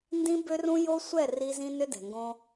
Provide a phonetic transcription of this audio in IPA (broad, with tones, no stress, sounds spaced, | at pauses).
n d ĩ˦ b ʏ˦ r ũ˦ j o˦ sʷ ɛ˦˨ r i˦ z ĩ˦ n ʏ˦ d ɛ̤˨ ŋ ɡ õ˦